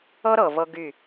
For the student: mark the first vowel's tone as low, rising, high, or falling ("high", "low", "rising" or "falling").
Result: high